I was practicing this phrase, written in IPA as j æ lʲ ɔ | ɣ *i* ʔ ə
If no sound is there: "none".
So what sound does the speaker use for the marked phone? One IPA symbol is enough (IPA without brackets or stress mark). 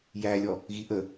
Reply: i